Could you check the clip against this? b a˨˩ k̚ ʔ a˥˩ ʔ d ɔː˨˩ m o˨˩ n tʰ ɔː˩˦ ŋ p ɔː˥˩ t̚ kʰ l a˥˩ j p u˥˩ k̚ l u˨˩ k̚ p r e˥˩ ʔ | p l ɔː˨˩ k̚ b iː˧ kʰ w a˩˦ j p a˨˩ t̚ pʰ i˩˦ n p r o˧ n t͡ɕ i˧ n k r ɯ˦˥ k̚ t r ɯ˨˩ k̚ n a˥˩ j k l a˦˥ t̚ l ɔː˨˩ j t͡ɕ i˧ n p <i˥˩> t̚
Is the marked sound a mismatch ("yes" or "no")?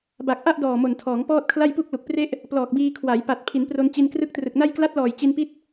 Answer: yes